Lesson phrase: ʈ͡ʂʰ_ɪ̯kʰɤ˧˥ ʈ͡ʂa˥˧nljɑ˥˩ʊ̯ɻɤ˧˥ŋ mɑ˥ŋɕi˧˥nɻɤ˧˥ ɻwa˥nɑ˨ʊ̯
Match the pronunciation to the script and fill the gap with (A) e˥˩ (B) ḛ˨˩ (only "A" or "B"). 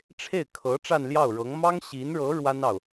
A